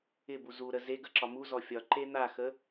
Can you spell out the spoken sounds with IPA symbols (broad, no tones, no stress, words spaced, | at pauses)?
ɪbu zuɾə zeɡə ǁɒmuzɔ fʲɒǃe n̪axə